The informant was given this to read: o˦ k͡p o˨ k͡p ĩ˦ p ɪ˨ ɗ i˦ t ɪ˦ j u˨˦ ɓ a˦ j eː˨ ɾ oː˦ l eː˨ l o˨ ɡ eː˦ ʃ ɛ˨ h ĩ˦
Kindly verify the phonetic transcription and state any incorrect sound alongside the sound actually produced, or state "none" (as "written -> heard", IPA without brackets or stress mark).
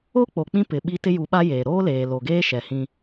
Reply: ɗ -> ɓ